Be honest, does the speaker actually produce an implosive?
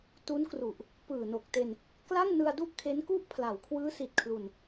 no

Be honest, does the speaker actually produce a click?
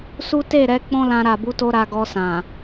no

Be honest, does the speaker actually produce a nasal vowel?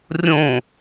yes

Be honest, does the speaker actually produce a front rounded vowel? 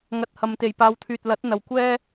yes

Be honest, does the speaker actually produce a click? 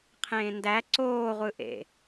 yes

